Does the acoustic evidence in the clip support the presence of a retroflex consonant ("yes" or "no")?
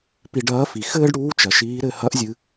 yes